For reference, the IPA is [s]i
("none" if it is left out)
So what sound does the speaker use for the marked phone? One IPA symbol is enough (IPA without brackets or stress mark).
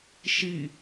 ʃ